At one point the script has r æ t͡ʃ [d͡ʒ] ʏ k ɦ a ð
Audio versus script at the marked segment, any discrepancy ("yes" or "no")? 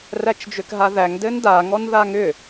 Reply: no